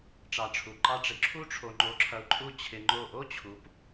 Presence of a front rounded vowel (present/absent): absent